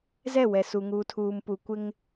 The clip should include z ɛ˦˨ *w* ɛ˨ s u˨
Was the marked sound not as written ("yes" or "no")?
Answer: no